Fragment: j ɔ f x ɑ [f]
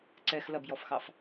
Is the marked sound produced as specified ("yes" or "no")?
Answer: yes